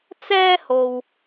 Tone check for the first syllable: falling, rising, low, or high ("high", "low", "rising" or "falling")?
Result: high